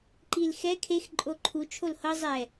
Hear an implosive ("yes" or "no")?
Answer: no